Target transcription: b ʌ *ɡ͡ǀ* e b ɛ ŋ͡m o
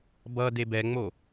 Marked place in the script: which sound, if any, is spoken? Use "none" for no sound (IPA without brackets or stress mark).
d